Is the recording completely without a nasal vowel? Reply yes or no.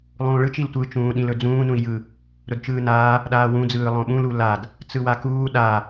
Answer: no